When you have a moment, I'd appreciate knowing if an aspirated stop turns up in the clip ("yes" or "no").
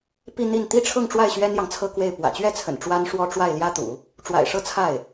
yes